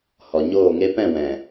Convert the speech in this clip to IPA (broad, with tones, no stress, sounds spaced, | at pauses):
h ɔ˨ ɲ oː˦˨ ŋ e˦ p ɛ̃˦˨ w ɛ̃˨